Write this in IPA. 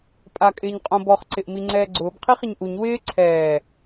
pʼ a kʼ ɪː ɲ qʼ õ b ɔ χ ǀ ɪ ʔ m i ŋ͡ǀ ɛː ɡ͡ǀ ʊː b qʰ i χ ɪ ɲ ʔ u ɲ w ɪː ǀʰ ɛː

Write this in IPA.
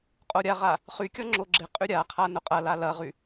qʼ o ɾʲ a ʁ a | χ y kʲ ɔ ŋ͡ǁ o ɡ͡ǁ ɪ qʼ y ɾʲ a qʰ a n ʊ qʼ ɐ l a l ɐ ʁ y

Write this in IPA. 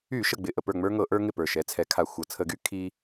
y˧˩˧ ʃ ə˨˩ ɡ͡b ɪ˨˩ ʔ ə˥˩ p ə˞˥˩ ŋ͡m ə˞˦ ŋ ɤ˧˩˧ ʔ ə˞˦ ŋ ɪ˥˩ p ə˞˨˩ ʃ ɛ˩˥ t͡sʰ ɛ˩˥ kʰ a˨˩ xʷ ɤ˨˩ t͡sʰ ə˧˩˧ ɡ y˦ kʰ i˦

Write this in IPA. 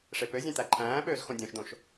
ʂ e p ø zʲ ẽ t̪ æ ǃʰ æ̃ː ɓ øː z x õ dʲ õ ʃ d̪ õ ʃ

